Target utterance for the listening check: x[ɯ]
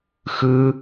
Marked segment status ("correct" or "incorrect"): correct